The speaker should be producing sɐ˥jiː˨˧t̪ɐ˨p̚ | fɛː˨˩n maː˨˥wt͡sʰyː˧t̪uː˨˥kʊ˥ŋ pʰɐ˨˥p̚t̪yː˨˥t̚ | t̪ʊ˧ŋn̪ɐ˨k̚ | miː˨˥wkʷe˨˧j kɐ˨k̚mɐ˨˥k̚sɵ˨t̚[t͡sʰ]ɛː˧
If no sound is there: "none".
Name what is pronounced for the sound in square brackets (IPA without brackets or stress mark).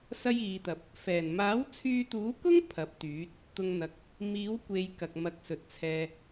t͡sʰ